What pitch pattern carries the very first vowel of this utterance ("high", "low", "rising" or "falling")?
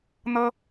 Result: high